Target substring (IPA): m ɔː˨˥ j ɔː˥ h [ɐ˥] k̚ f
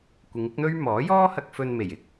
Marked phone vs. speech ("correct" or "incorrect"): incorrect